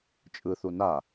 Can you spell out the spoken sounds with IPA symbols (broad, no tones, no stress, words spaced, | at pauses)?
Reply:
t͡ʃʼɯθu na